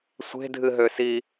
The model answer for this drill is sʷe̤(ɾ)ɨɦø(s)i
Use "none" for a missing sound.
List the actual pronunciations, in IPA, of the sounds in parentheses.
dʱ, s

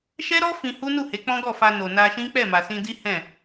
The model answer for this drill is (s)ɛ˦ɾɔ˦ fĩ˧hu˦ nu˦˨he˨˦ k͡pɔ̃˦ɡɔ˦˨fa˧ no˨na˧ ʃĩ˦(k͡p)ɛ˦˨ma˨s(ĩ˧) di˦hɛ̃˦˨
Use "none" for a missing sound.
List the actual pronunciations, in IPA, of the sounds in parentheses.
ʃ, k͡p, ĩ˧

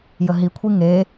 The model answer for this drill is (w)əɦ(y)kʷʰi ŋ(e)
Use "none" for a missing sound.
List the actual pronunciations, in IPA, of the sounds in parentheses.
j, i, e

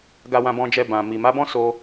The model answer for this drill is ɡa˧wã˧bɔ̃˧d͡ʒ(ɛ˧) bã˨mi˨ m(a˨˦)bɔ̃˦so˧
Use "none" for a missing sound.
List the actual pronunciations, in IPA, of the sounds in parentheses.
ɛ˧, a˨˦

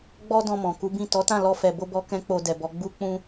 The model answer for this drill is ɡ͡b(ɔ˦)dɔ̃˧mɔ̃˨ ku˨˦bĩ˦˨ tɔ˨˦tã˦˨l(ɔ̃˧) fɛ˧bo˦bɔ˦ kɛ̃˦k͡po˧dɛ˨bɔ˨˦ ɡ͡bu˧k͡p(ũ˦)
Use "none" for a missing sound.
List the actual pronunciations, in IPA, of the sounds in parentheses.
ɔ˦, ɔ˧, ũ˧

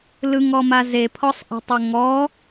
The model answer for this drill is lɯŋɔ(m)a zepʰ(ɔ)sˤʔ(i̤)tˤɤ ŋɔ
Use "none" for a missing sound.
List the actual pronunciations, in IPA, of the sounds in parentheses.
m, ɔ, i̤

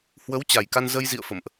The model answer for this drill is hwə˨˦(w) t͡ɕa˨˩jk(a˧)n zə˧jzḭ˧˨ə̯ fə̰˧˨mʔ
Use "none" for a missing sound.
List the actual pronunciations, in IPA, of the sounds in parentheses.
w, a˧

